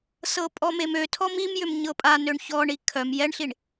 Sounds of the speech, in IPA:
s ɤ pʼ ɔ m e m ø tʰ ɔ m i m j ʏ m ɲ ɤ pʼ a n ø ɳ ç ɔ ɳ i kʰ œ m j ɛ ɳ ɬ i ɳ

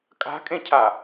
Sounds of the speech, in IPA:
kʼ a̤ kʼ ẽ cʰ a

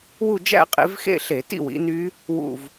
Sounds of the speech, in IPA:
w u˥˧ d͡ʒ æ̰˥˧ qʼ ḛ˨˦ v x ḛ˥˧ ɬ e˧˩˧ t ḭ˥˧ w ḭ˨˦ n y˦˥ | w ṵ˥˧ v

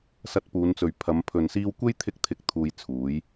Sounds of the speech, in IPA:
s ɐ˧ t̚ p uː˨˧ n t͡s ɵ˨ ɥ pʰ ɐ˨˧ m pʰ ɵ˨ n s iː˧ w kʷ e˥ j t̪ʰ ɪ˧ k̚ t̪ʰ ɪ˨˥ k̚ t̪ʰ uː˧ j t͡sʰ uː˨˥ j

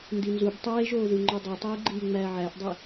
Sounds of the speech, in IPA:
n d i n z u b tˤ eː ʒ oː ð u ŋ͡ǃ o dˤ i tˤ iː ɡ͡ǃ iː ŋ͡m æː ʕ æ ʔ dˤ e

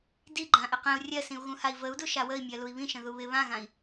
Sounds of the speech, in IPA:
d i ɡ͡ǃ ã ʔ ɪ q ĩ u̯ rʲ ɜ s ĩ u̯ ɣ ũ h a i̯ v ə u̯ d u ʃ a w ə i̯ mʲ ɜ l u i̯ β ĩ ʃ ə̃ ð u β ɪ β ã ɣ ã i̯

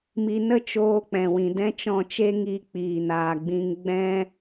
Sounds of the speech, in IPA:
m i˧ n ə˦ t͡ʃ oː˦ k͡p ɛ̃˨ w ĩ˨ d ɛ̃˦ t͡ʃ ɔ̃˦˨ t͡ʃ e˦ ŋ i˧ k͡p iː˨ n aː˨ ɡ͡b ĩ˧ ŋ ɡ͡b ɛ̃˦

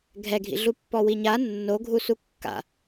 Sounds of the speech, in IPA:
ɡʱ ɛ ɡʱ ḭ ɮ u pː ɔ w i ɲ a nː o ɡʱ u s u kː a̰

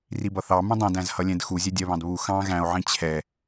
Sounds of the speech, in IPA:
r i b ʌ θ ɑ m ũ dˤ ĩ d æ̃ z h ʌ lʲ ɛ̃ d x u zʲ ɛ dʲ ɜ β ɑ̃ d β u x ɑ̃ ɣ æ̃ o̯ ʕ ĩ t͡ɕʰ ɛ

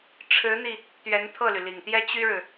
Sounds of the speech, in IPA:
ʈ͡ʂʰ ɻ̩˧˥ n̪ i˧ | t̪ ɥ ɛ˧˥ n t̪ʰ ɤ˥˩ l y˩ l i˨˩ ŋ t̪ j ɛ˥ t͡ɕ y˥ ɻ ɻ̩˨

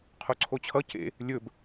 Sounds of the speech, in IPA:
qʰ o ǀʰ o t͡ɕʰ ʌ c ḛ | lʲ ɵ b

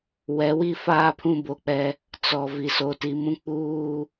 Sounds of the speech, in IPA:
w ɛ˨˦ w i˦ f aː˦ pʰ ũ˦ b o˨ k͡p ɛ˦ | t͡s ɔ˨ v i˨ s o˨ t i˨ m ũ˦ k͡p uː˦

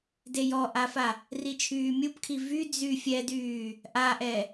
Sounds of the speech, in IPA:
d e j ɔ ʔ a f a | r i t͡ʃʰ yː mʲ u p kʰ i v y d͡z y fʲ ɛ d yː | ʔ a ʔ ɛ

